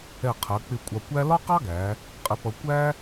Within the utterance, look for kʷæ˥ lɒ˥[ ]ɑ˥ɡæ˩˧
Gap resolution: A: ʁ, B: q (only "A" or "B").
B